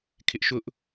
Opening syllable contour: high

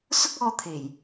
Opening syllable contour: high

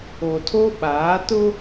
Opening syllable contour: low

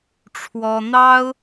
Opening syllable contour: high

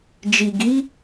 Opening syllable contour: low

